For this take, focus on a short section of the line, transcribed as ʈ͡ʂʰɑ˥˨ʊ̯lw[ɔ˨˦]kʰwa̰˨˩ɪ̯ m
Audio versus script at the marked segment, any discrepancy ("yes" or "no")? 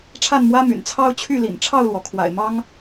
yes